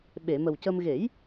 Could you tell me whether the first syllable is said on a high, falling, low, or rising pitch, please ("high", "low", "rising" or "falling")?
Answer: low